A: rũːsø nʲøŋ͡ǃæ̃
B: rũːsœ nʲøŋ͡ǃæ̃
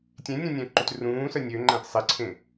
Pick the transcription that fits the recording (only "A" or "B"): B